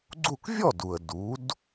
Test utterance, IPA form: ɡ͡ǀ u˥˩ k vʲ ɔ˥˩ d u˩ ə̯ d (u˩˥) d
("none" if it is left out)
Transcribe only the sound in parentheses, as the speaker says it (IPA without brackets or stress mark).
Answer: u˩˥